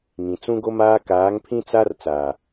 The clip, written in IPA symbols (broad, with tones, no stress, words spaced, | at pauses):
ŋĩ˨t͡sũ˦ɡo˦maː˦ kaː˨˦ŋpʰĩ˦t͡sa˦r t͡saː˨